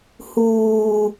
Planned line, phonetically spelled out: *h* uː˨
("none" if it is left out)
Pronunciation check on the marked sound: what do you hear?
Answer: h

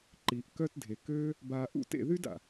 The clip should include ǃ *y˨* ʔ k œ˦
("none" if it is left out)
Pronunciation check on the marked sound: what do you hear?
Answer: i˨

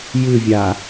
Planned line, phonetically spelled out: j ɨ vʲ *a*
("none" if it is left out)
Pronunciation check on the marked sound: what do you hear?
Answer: a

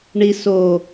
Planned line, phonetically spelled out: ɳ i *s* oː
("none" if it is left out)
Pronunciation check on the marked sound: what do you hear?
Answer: s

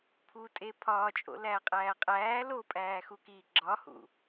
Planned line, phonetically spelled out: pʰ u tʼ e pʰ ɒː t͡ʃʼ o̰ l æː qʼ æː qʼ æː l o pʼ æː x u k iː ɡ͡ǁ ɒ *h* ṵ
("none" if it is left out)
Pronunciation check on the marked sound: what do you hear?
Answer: h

